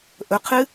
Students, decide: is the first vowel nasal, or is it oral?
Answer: oral